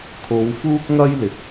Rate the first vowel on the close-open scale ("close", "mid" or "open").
mid